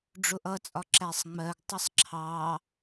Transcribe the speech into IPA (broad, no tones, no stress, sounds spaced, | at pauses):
ɖ͡ʐ ʊ ʔ ʌ t͡sʼ ɒ ǁ æ sˤ ŋ͡m ɜ ɡ tˤ ɪ sˤ ǁʰ ɑ